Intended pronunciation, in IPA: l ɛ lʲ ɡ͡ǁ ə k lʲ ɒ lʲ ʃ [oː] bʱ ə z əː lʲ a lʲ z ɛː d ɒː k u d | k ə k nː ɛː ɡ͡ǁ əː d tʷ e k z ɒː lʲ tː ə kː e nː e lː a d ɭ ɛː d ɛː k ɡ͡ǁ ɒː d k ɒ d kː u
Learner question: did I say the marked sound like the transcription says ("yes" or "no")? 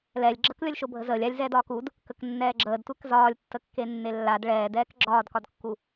no